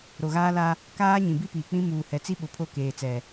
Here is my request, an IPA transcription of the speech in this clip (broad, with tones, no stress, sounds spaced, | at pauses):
ɾ o˨ ɣ aː˦ l a˦ | k aː˦ ɲ ĩ˨ b i˦ p iː˨ k͡p ĩ˦ m uː˨ h ɛ˨ t͡s i˦ ɓ ʊ˨ pʰ o˦˨ k eː˨ t͡s ɛ˨